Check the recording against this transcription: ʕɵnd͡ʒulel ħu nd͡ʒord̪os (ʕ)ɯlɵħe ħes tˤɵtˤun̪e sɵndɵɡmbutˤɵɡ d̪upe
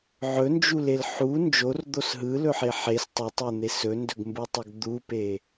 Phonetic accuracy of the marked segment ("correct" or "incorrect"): incorrect